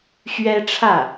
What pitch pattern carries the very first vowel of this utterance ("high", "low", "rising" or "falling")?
high